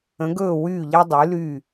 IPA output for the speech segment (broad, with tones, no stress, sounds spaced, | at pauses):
ə̃˨˦ ɡ ɵː˦˨ w yː˦˨ ʎ ɛ˦ dˤ y˨˦ l y˦˨